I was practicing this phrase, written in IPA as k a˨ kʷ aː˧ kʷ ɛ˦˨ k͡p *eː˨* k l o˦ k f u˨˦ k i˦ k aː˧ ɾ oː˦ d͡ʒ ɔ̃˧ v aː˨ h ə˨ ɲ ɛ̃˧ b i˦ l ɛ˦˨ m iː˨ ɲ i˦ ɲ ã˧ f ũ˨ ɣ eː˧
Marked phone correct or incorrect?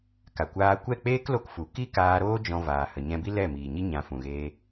incorrect